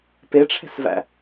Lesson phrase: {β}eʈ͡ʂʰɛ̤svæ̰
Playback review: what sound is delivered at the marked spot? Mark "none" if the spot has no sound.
p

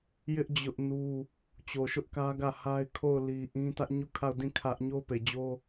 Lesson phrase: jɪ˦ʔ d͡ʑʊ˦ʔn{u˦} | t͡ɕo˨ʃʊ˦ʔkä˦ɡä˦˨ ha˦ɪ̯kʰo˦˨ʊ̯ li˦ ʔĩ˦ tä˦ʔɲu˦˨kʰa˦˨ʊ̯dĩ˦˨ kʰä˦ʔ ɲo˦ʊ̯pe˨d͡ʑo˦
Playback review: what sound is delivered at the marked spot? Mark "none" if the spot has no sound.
u˦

